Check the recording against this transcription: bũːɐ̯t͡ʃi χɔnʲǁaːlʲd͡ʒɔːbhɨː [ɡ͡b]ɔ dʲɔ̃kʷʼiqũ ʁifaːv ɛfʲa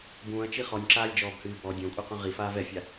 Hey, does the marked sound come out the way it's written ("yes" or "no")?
no